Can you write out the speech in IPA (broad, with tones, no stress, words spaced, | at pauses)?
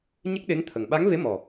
ɲə˦˥k̚ɗe˧˥ŋt̪ʰə˨˩ŋ ɓa˧˥ŋve˧˥mɔ˨˩